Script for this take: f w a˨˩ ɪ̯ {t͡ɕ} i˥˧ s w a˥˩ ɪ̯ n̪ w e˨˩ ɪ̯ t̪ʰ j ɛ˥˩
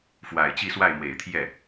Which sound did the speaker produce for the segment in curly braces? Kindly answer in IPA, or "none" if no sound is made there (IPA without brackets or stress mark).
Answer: t͡ɕ